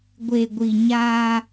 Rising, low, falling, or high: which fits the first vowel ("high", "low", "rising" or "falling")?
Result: low